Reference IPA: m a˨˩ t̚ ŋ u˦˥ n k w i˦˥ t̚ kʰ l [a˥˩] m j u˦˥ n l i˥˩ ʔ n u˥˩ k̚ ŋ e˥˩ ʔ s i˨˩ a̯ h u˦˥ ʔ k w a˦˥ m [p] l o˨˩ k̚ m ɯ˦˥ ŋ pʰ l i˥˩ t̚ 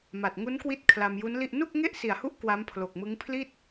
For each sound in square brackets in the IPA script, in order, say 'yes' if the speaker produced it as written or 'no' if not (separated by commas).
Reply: no, no